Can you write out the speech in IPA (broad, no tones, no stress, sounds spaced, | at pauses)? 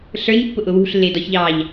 ɬ ə˞ ɲ pː ʊ ʔ ʊ w ṳ ɬ lː ɪː d ɔ ç ʎ ɑː ʎ